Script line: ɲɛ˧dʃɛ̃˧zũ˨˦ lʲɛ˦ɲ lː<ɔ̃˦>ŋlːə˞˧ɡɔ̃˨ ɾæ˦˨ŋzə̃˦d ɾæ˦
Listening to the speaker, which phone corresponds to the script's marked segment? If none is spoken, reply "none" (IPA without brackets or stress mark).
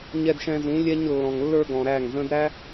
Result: ɔ̃˨